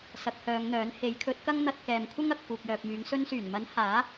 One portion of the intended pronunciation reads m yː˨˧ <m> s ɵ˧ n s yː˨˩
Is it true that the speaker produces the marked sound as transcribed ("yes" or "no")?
no